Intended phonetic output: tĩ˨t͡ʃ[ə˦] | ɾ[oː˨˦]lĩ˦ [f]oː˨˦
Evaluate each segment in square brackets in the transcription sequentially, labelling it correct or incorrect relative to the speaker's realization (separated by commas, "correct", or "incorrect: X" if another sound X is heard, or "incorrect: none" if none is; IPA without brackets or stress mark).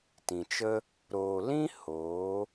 correct, incorrect: oː˨, incorrect: h